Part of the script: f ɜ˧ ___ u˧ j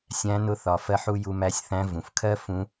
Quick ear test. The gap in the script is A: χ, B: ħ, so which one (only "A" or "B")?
B